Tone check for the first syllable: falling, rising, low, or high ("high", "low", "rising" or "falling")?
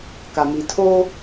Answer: low